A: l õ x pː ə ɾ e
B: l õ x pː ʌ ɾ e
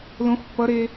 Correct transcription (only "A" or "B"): B